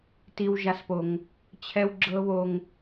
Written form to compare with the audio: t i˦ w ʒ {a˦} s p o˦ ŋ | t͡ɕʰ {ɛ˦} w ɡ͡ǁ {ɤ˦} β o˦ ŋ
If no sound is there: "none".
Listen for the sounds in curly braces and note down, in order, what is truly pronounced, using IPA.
a˦, ɛ˦, ɤ˦

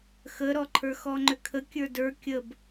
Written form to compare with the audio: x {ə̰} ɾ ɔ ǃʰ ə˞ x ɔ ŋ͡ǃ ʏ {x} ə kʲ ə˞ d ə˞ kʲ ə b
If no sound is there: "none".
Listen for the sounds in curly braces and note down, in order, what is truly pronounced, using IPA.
ə, kʰ

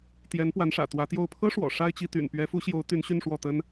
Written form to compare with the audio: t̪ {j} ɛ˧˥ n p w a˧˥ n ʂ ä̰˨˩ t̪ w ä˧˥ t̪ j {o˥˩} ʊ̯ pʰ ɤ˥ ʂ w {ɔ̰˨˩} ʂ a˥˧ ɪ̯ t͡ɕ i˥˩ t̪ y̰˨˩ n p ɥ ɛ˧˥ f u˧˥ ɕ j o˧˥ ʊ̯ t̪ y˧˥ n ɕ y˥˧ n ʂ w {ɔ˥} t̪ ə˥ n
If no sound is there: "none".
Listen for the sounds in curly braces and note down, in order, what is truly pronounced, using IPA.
j, o˥˩, ɔ̰˨˩, ɔ˥˩

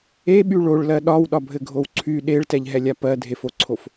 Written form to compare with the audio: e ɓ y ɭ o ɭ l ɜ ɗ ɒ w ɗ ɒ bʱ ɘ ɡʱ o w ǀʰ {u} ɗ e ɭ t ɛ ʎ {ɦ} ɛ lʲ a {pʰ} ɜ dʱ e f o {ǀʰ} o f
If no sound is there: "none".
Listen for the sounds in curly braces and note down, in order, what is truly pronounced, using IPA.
y, ɦ, p, ǀʰ

